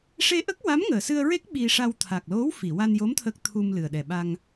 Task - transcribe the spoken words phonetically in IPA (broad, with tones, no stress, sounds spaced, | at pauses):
ʂ e˧ ʔ ə˦˥ k̚ w a˧˥ m ŋ əː˨˩ s ɨ˧ ə̯ ɹ e˦˥ k̚ ɓ i˧ ʂ a˧ w t̪ʰ a˨˩ k̚ l o˧˥ w f i˨˩˨ w a˧ n j o˧˥ m t̪ʰ ə˦˥ k̚ t̪ʰ u˧ m l ɨ˨˩ ə̯ ɗ ɛ˨˩ ɓ a˧ ŋ